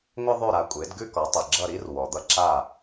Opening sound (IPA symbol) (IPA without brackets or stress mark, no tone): ŋʷ